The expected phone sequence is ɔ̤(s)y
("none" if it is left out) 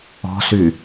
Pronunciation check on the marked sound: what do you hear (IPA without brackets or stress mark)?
s